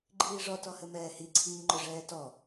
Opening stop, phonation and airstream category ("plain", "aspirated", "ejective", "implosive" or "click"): click